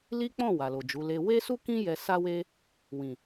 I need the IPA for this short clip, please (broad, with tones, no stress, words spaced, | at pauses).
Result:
li˦k͡pɔ̃˦˨ wa˨lo˨d͡ʒu˨˦le˦ we˦su˦kĩ˦ jɛ˧ sa˦we˦ | wĩ˨